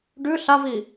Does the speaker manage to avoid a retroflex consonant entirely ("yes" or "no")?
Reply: no